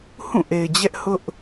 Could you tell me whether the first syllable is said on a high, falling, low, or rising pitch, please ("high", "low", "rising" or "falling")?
falling